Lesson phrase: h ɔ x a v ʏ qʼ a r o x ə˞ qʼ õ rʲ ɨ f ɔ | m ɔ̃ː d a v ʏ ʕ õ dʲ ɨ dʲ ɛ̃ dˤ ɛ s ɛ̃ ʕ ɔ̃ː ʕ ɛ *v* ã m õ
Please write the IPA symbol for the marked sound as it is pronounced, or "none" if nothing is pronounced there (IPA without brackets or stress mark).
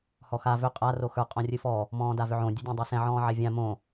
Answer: vʲ